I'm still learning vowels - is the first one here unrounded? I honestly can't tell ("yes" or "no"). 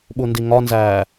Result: no